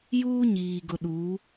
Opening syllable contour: high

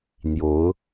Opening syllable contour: rising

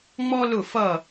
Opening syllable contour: high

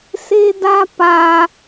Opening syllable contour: high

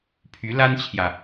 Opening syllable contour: rising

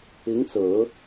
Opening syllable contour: rising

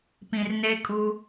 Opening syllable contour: low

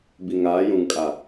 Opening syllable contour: low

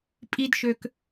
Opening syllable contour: high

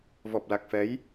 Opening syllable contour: low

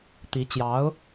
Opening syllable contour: rising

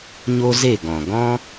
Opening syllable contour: high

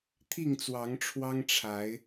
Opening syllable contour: falling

